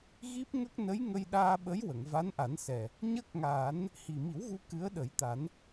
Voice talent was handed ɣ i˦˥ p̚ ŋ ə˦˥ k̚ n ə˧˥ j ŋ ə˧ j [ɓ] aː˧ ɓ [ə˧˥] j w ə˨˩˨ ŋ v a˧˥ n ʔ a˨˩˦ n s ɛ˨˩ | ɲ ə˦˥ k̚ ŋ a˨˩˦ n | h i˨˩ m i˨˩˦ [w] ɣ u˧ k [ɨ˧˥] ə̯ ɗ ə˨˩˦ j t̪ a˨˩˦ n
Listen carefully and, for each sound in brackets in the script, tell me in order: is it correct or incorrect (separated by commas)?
incorrect, correct, correct, correct